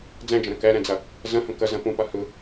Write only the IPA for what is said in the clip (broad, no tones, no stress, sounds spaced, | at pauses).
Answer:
d͡z ɛ̃ d͡ʒ ə̃ ɾ ə̃ k ɛ ɾ ɛ̃ d͡z ɐ | z ə̃ h ə̃ k ə z ə̃ p ũ p ɐ h ɯ